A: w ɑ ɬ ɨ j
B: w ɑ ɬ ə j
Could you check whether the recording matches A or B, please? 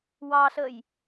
B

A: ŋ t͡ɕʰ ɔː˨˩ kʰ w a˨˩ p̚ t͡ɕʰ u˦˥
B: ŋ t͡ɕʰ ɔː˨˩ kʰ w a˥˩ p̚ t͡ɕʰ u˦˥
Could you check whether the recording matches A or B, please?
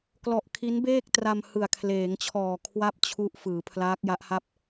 B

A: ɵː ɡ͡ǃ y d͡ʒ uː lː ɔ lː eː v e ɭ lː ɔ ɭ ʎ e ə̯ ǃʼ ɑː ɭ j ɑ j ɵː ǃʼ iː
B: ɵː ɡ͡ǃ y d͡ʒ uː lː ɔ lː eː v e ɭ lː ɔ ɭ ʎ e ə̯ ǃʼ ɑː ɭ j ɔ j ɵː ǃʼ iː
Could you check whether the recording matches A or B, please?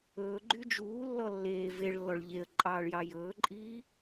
A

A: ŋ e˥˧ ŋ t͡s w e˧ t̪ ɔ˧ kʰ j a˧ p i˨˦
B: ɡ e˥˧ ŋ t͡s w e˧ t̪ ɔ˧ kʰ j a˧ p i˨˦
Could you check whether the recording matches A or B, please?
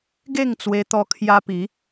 B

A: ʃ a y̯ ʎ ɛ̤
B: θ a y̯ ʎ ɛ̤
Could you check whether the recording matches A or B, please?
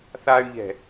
B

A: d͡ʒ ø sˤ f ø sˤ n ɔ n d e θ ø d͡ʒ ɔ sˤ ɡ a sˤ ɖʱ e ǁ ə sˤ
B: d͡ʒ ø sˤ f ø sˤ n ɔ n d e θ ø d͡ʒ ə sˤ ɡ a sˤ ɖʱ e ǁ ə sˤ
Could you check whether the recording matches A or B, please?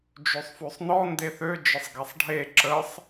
B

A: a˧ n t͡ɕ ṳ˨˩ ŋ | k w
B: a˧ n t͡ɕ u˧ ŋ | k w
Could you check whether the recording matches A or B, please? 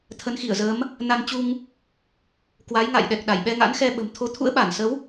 B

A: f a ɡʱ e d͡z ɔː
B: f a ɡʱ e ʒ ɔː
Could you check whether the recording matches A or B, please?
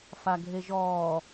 B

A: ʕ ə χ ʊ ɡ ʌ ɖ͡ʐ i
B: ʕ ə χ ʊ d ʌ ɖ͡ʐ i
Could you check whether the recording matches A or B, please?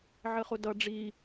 B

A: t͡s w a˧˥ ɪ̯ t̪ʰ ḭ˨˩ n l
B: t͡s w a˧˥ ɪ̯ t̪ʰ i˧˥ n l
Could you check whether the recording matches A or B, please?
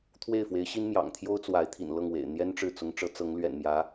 A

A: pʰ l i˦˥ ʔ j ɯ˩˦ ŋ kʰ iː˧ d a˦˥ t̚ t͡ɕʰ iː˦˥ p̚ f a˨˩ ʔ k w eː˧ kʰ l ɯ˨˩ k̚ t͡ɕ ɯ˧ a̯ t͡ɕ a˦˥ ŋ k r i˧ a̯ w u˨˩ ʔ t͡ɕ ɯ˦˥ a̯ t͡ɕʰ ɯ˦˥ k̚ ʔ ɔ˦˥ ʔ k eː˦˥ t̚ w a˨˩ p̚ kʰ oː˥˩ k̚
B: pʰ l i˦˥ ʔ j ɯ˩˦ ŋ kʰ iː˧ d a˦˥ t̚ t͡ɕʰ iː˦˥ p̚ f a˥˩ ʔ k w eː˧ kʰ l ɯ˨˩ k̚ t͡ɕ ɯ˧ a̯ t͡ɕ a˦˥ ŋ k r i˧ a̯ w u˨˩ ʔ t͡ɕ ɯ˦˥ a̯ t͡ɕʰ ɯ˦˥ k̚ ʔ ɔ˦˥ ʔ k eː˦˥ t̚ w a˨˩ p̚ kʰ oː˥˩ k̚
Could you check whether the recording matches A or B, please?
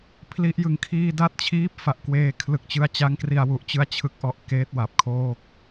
A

